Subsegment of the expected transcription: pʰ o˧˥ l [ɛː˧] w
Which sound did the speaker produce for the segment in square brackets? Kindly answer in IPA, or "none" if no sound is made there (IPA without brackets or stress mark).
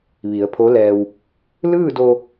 ɛː˧